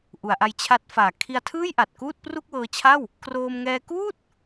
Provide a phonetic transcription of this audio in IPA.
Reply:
ʔ u˩˦ a̯ ʔ a˧ j t͡ɕʰ a˦˥ t̚ f aː˨˩ kʰ i˧ a̯ tʰ ɯː˥˩ j ʔ a˨˩ t̚ k uː˥˩ t̚ p r u˥˩ k̚ w ɤː˧ t͡ɕʰ a˥˩ w | k r oː˧ m ŋ ɛː˧ k uː˥˩ t̚

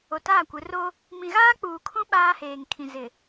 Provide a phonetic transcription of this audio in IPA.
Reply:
o˨ t aː˦˨ kʷ ɪ˨˦ r o˦ | m ĩ˨ ɣ aː˦ k͡p uː˨ kʰ ũ˦ ɓ aː˦ h eː˨ ŋ kʰ ĩ˨ z ɪ˨

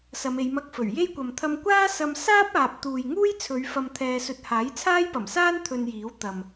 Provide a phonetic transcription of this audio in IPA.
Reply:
s ɐ˨˧ m e˨˧ j m ɐ˧ k̚ f ɵ˨˩ ɥ j e˥ j kʷ ɐ˨ m t̪ʰ ɐ˧ m kʷ aː˥ s ɐ˧ m s aː˥ p̚ aː˨ p̚ t̪ uː˨ j ŋ uː˥ j t͡sʰ ɵ˨˧ ɥ f ɐ˧ m t̪ʰ ɛː˧ s ɵ˧ t̚ h aː˨˥ j t͡sʰ aː˥ j p ɐ˨˩ m s aː˥ n t̪ʰ ɵ˧ n j iː˨˥ w t̪ ɐ˨ m

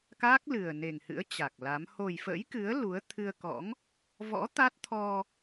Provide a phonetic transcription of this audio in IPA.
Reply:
k aː˦˥ k̚ l ɨ˨˩ ə̯ n e˨˩ ŋ h ɨ̰˧˥ ə̯ t͡ɕ a˨˩ k̚ l a˨˦ m h o˨˩ j f ə̰˧˥ j k ɨ˨˦ ə̯ l u˨˦ ə̯ t̪ʰ ɨ˧ ə̯ k ɔ̰˧˥ ŋ | v ɔ̰˧˥ t̪ a˦˥ t̚ t̪ʰ ɔ˧

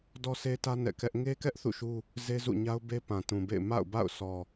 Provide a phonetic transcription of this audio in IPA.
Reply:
d ɔ˦ sʰ e˦ t ä˦ n ɛ̰˦˨ k ɛ˦ ʔ ŋ e˦ k ɛ˦ ʔ θ ṵ˦˨ ʃ u˦ | z e˦ z ṵ˦˨ ɲ a˦ ʊ̯ b e˦ p ã˨ t ũ˨ b ḛ˦˨ ɪ̯ m a̰˦˨ ʊ̯ b a̰˦˨ ʊ̯ s ɔ˨

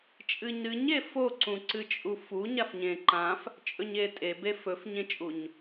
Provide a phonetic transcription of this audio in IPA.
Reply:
t͡ʃʼ ɨ ɲ ɾ ɨ ɲ e f o ǀ ũ ǀ ɨ t͡ʃʼ u f u ɲ a f ɲ ẽ ǃ ã f | t͡ʃʼ ɵ ɲ e tʼ e b e f ɵ f ɲ ẽ t͡ʃʼ u ɲ

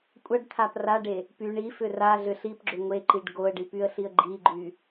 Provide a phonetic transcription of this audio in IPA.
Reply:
kʷʼ ɐ ɖ t̪ʰ a p r a ɖ e | p y ɳ i f ʏ r a ɮ ʏ ɬ i p ɡ͡ǁ ʏ ŋʷ e ǃ i ɖ ɡ o ə̯ ɖ i p y ə̯ ɬ i ə̯ ɡ͡ǃ i ɡ͡ǃ y

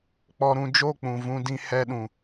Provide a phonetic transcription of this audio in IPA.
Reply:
k͡p ɔ˧ ɾ ũ˧ d͡ʒ o˦˨ k͡p ũ˨ v ũ˦ d ĩ˦ h ɛ˦ ɗ ũ˨

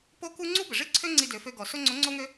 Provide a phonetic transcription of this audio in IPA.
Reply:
p o˥ k u˥ ŋ͡ǀ u˥ b ə˩ ʐ i˥ ǀʰ ø˥ ŋ͡ǀ i˧ d ø˩˧ f ø˧ ɡ ɔ˩ s o˥ ŋ͡ǀ o˧˥ ŋ͡ǀ o˥ ŋ ø˥

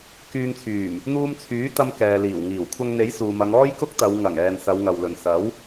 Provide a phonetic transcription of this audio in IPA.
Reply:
k yː˧ ŋ t͡sʰ yː˨˩ m | n̪ uː˧ m t͡sʰ yː˨˥ t̪ ɐ˧ m k ɛː˨ l iː˨˩ w ŋ iː˨˩ w kʷʰ ɐ˧ ŋ n̪ e˨˥ j s uː˨ m ɐ˨˧ ŋ ɔː˥ j k ʊ˥ k̚ t̪ ɐ˨˧ w ŋ ɐ˨˩ ŋ ɛː˨ n s ɐ˨˧ w ŋ ɐ˨ w l ɵ˨ n s ɐ˨˥ w

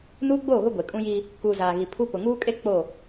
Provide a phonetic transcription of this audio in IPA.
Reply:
n uː˦ ɡ͡b oː˦˨ ɣ ʊ˦ ɡʷ e˨ kʼ ũ˦ j iː˦ | k uː˨ z aː˨ ɣ i˨ pʰ u˦ p ʊ˨ ŋ uː˦ kʼ e˦ k͡p o˦˨

